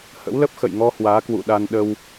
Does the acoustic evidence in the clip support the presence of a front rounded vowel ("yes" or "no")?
no